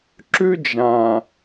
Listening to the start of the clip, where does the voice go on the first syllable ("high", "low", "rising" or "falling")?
high